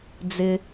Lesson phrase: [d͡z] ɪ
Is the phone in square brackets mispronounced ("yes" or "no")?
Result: no